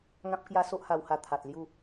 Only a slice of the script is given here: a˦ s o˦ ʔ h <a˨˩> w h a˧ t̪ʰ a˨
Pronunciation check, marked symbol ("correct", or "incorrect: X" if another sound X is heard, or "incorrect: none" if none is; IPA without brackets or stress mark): incorrect: a˧